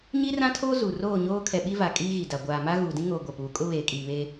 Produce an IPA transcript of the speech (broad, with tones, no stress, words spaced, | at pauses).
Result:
ɲi˦rã˦tʰoː˦ zu˨ roː˦˨ɲoː˦ kʰɛ˨ɓi˦va˨ kʼiː˦ɣi˨da˨ ɡʷaː˨ma˦ ɣuː˨dĩ˦ŋoː˨ ɡʷɛ˨puː˨˦ kʼʊ˦βeː˨ kʼiː˨βeː˦